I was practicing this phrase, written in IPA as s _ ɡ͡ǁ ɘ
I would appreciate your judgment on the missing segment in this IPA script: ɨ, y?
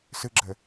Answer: ɨ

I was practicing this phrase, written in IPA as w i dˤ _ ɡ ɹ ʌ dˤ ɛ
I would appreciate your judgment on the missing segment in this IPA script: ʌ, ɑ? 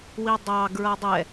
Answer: ɑ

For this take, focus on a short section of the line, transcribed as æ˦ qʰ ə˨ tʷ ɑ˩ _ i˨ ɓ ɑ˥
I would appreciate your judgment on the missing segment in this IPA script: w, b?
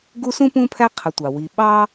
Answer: w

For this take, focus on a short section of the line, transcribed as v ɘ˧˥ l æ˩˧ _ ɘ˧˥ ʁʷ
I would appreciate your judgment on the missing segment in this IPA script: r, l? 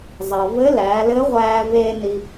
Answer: l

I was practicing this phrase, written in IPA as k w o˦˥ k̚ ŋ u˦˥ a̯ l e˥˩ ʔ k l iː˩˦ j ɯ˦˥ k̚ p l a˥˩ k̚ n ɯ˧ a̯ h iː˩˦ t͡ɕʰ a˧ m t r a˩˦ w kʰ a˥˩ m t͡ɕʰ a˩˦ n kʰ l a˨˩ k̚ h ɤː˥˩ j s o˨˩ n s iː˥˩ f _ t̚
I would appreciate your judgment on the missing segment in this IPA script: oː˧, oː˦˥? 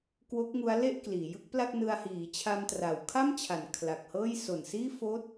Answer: oː˦˥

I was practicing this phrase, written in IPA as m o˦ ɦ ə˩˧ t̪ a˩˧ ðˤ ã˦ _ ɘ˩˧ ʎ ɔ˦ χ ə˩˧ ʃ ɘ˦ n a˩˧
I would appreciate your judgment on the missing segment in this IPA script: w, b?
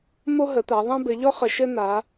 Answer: b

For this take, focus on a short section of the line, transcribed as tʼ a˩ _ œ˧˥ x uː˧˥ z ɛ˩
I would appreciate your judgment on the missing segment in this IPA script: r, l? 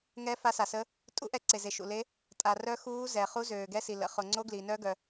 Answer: r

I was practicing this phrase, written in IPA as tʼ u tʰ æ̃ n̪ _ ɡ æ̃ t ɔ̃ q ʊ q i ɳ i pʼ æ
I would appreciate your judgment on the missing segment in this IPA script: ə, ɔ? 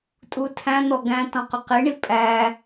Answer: ɔ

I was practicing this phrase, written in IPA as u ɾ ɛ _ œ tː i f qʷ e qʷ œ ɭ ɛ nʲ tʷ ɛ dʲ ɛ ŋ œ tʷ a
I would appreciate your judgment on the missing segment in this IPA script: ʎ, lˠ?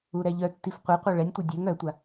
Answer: ʎ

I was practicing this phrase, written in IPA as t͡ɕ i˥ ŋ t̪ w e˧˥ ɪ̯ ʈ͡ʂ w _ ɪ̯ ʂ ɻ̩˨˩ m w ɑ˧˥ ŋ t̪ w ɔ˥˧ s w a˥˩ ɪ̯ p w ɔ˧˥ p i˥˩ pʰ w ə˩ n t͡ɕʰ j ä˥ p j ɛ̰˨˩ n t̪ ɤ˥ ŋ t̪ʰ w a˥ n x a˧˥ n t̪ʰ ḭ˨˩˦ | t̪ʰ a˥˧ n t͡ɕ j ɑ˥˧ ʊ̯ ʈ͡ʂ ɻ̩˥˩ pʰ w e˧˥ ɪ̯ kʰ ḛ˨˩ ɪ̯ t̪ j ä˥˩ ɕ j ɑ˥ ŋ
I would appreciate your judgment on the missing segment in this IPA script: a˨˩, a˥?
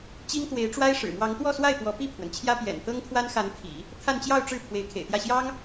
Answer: a˥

